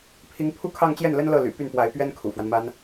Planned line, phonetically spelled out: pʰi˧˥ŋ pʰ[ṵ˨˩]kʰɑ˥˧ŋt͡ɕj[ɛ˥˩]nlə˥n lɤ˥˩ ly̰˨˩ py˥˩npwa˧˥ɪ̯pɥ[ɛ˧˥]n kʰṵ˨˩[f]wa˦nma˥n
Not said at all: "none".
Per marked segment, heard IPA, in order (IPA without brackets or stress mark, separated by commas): u˥, ɛ˥˩, ɛ˥, f